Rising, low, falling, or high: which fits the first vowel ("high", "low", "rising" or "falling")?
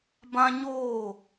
high